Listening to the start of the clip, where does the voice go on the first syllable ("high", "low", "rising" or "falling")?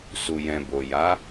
low